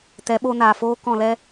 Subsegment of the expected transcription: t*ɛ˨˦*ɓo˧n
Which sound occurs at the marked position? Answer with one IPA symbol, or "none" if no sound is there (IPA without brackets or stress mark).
ɛ˨˦